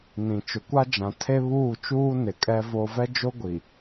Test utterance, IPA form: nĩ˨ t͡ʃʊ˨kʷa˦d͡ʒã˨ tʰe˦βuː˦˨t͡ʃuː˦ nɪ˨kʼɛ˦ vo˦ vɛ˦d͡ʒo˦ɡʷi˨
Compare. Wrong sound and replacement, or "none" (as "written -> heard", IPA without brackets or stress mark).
none